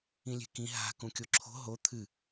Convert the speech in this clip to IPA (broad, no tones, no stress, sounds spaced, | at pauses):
ĩ lʲ e̤ k ĩ ɦ a̤ k ũ kʲ o ǁʰ o̤ ɦ o t̪ʰ ɨ